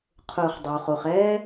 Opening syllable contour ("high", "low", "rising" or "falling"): low